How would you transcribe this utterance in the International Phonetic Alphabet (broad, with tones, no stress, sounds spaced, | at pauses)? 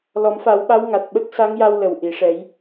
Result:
l ɔ˨˩˦ m f a˨˩˦ w ɓ a˧˥ w ŋ a˨˩ t̚ ɓ ə˦˥ k̚ s a˧˥ ŋ j a˧ w l ə˨˩ w ʔ i˨˩˨ ʂ ɛ˨˩˦ j